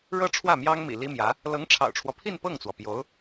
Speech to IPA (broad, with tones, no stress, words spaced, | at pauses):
ɻɤ˥ʈ͡ʂʰwä˥˩mjɑ˥ŋ mḭ˨˩li˥mjä˧˥ | lɤ˧˥ŋʈ͡ʂʰɑ̰˨˩ʊ̯ʈ͡ʂʰwɔ˦pʰi˥˧n pɤ˥˩ŋt͡swɔ˩pjo˧˥ʊ̯